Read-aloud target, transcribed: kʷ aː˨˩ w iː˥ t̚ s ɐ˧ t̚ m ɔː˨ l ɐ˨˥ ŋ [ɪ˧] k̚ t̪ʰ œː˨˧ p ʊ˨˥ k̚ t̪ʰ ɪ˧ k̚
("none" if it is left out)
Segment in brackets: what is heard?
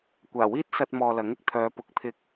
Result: ɪ˧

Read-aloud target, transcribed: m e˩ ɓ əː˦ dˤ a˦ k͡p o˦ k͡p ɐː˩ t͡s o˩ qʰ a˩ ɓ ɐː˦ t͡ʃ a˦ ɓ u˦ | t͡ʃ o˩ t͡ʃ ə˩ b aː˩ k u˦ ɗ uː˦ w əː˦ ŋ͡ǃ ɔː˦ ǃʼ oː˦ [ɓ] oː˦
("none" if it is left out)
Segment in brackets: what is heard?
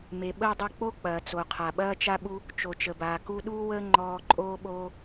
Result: ɓ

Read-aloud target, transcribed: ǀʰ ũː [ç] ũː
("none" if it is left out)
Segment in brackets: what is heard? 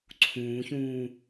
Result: ç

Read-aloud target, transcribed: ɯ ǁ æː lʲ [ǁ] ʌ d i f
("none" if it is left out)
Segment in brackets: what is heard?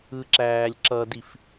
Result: ǁ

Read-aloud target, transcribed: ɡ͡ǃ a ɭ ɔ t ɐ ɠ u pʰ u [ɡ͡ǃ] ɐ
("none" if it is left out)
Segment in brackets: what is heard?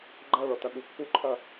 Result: ǃʰ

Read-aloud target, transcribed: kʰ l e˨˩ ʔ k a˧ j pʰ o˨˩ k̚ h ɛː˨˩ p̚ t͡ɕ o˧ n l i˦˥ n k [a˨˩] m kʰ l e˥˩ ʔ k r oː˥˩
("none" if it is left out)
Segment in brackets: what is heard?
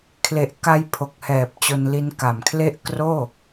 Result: a˨˩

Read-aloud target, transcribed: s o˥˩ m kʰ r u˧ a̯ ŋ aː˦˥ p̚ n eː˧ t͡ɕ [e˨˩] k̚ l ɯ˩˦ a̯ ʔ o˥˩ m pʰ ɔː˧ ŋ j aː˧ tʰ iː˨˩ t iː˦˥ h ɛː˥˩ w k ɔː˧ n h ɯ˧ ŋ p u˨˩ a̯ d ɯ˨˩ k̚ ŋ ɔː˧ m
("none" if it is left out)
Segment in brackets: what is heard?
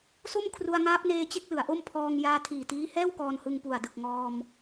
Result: e˥˩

